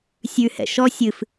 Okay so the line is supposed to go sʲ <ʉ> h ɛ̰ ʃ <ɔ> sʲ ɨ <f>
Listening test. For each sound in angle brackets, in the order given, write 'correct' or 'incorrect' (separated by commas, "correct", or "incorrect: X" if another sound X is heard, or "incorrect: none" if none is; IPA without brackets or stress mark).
correct, correct, correct